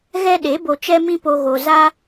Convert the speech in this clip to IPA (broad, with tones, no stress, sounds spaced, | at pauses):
ɣ ɛ˦ ɗ e˨˦ b o˧ t͡ʃ ɛ˦ m ĩ˦ p o˧ ɣ o˨ z a˧